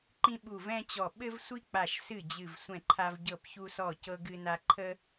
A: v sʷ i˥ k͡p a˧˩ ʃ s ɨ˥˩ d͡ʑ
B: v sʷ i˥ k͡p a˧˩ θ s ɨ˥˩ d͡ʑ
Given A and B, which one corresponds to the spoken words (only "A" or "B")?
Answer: A